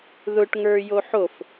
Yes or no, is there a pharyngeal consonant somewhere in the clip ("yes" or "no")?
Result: yes